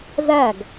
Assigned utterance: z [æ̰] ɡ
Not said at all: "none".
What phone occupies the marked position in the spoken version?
æ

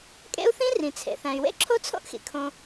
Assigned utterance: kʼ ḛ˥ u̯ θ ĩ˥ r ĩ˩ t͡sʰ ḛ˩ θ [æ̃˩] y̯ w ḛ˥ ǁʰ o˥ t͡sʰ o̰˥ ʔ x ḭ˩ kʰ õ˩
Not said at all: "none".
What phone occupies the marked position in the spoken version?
æ̃˩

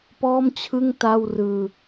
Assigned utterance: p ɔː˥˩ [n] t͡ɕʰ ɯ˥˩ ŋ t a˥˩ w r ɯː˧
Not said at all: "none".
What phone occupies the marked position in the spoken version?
m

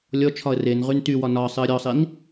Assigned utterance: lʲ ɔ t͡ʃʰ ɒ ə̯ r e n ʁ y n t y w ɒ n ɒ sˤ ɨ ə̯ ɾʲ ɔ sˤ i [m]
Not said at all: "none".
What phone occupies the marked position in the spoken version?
n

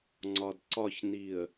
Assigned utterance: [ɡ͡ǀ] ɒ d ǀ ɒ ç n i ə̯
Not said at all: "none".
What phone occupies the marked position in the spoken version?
ŋ͡ǀ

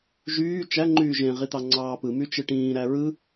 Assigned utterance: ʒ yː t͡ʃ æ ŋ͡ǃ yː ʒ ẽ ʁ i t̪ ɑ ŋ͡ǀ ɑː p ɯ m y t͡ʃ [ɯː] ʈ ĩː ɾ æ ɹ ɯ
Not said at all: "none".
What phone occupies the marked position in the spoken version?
ɯ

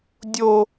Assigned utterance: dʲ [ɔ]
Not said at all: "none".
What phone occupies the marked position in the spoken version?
o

